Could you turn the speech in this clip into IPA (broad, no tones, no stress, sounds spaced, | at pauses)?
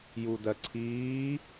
j u d ɜ ǀʰ iː